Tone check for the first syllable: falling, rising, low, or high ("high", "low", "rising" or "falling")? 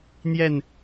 falling